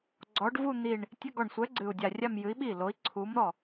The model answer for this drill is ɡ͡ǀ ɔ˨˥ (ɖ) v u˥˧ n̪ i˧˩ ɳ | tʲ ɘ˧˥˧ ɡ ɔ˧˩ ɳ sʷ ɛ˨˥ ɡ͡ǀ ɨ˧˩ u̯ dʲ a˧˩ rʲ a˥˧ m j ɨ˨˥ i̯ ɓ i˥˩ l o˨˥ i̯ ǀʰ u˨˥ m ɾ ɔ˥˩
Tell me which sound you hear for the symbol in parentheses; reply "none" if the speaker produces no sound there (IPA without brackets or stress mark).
ɖ